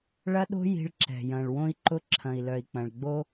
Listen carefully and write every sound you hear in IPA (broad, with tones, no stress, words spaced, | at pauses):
ɭɐ˦ɗo̤˦ ji̤˧ɭǁɛ̤˨ jɐ̃˨ɭwõ˦i̯ǃʊ˦ǁʰɐ̃˨i̯ lœ˨i̯k͡pɐ̃˨ɭ ɡ͡bo˦